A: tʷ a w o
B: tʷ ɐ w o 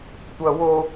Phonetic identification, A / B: B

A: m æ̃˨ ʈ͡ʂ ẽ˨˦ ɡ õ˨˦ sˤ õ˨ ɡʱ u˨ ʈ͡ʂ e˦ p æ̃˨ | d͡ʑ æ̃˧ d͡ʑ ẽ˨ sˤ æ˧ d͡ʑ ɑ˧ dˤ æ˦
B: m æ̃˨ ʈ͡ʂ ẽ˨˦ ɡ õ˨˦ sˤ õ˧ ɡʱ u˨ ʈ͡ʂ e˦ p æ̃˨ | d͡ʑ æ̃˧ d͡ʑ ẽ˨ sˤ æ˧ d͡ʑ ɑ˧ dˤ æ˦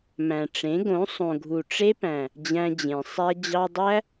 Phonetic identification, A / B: A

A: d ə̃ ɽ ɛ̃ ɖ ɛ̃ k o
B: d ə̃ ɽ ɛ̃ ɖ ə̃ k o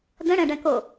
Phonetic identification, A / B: A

